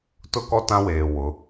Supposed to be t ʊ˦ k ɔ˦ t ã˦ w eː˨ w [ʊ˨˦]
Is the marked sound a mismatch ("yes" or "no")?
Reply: no